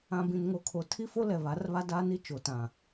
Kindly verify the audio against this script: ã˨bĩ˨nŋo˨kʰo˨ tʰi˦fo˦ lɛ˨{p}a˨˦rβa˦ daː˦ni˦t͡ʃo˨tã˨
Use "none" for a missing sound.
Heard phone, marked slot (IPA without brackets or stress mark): β